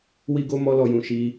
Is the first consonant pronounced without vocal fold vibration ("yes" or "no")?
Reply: no